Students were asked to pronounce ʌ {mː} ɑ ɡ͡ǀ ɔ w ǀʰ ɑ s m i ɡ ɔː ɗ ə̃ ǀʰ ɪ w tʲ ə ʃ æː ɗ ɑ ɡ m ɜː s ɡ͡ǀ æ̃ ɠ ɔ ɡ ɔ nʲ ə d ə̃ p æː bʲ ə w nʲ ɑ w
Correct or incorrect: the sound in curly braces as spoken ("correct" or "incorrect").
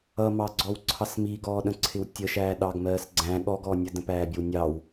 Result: incorrect